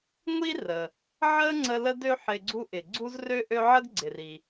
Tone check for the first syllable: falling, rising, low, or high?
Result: high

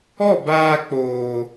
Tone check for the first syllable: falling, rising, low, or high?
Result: falling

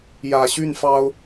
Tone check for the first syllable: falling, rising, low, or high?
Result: low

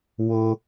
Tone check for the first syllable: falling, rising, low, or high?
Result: high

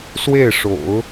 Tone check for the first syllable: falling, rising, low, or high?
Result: falling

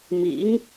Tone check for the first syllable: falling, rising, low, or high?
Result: rising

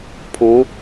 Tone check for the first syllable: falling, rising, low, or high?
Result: rising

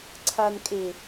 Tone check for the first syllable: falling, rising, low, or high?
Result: low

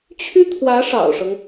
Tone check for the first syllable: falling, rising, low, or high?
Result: high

